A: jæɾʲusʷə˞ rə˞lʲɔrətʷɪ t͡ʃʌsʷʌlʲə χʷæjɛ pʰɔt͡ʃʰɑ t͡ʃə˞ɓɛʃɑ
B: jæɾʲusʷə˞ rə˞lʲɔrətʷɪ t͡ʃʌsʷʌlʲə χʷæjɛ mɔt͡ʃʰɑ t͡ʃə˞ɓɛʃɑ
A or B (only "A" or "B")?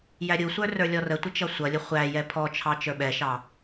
A